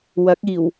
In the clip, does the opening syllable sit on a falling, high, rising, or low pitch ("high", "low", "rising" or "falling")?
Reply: rising